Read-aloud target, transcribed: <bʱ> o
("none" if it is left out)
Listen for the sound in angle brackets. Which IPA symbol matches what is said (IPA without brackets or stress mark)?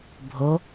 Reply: bʱ